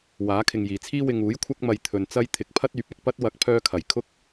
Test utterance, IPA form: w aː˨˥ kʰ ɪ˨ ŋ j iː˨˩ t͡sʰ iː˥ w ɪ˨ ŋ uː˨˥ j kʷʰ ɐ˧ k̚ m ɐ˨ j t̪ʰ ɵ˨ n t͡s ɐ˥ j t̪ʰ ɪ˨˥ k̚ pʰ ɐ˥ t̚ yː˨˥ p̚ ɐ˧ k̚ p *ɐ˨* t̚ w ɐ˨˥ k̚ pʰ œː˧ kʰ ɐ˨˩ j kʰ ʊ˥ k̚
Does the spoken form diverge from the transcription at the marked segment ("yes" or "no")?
yes